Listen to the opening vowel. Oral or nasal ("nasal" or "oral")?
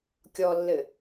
oral